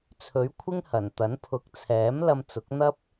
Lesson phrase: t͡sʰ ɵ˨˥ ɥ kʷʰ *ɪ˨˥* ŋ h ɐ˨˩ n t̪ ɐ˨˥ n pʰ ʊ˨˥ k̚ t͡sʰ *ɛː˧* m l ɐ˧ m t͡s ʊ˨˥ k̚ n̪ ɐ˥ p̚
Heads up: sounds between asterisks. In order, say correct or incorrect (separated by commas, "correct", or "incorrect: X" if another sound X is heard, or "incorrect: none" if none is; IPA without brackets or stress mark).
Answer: incorrect: ɪ˥, incorrect: ɛː˨˥